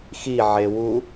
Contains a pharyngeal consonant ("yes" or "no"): yes